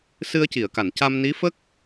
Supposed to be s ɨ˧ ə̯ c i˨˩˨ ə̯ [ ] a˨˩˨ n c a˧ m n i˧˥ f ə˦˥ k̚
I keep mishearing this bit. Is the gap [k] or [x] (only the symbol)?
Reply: k